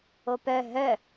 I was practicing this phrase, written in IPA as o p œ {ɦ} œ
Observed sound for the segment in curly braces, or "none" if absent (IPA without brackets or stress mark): ɦ